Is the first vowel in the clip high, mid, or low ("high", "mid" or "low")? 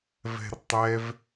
mid